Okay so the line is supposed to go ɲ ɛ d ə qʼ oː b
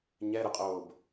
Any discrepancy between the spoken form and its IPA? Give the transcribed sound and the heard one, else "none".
d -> ɾ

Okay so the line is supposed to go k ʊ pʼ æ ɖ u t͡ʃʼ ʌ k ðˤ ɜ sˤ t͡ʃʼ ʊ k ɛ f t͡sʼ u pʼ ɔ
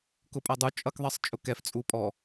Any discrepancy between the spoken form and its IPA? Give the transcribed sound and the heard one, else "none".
ɖ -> dˤ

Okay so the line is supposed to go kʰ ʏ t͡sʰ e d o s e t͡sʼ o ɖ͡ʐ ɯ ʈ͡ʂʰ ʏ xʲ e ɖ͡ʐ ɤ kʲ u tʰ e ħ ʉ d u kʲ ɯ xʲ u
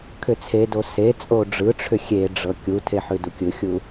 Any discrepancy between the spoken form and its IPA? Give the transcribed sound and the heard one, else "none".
none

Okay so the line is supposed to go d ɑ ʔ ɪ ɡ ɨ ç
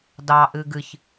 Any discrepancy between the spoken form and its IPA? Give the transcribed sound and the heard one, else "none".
ɪ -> ɨ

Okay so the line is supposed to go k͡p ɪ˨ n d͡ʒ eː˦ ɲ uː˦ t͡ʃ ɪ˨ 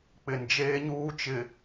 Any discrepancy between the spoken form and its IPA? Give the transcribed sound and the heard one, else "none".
none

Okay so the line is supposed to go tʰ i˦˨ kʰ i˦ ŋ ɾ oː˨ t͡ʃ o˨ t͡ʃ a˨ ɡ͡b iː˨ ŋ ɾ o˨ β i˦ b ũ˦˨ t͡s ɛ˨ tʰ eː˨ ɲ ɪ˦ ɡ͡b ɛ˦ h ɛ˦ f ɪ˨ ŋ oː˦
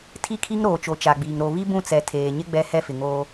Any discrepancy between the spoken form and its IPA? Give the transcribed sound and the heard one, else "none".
none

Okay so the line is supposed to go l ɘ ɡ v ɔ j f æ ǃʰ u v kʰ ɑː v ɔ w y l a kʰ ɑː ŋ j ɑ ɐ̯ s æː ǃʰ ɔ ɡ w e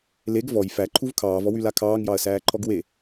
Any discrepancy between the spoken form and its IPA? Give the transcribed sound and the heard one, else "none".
ɘ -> e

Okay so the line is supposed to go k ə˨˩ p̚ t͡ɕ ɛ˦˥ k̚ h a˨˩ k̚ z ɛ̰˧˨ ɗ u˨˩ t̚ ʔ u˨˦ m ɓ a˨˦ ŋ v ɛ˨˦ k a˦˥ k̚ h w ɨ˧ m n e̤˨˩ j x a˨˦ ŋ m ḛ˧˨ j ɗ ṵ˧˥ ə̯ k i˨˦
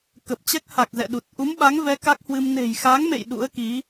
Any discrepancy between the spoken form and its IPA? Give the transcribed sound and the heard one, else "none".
none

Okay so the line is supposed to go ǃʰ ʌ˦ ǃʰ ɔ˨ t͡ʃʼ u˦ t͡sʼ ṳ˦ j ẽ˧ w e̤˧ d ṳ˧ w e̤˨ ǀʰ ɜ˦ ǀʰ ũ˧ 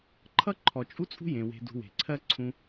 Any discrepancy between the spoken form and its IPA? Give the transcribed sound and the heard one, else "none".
none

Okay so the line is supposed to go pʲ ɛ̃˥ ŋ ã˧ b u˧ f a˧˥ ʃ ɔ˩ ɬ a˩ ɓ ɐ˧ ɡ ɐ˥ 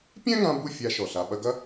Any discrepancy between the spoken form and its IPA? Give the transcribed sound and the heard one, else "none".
f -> fʲ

